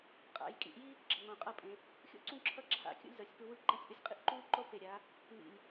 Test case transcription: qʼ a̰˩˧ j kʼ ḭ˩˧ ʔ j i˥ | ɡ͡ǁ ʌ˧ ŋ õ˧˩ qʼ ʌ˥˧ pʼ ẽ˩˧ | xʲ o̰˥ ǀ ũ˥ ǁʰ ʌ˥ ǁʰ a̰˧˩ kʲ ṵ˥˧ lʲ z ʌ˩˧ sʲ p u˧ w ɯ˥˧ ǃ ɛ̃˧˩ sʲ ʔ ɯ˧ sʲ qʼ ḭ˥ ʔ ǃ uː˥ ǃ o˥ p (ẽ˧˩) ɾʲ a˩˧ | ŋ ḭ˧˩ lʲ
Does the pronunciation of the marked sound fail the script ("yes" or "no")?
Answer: yes